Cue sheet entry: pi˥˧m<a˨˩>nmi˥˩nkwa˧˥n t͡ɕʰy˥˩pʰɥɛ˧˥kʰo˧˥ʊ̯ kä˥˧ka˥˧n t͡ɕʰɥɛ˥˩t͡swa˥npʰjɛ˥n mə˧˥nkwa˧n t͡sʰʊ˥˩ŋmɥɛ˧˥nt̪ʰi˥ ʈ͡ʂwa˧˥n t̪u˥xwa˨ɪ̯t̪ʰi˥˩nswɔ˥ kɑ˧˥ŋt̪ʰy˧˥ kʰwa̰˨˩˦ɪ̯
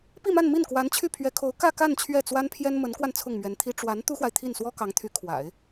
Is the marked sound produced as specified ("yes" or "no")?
no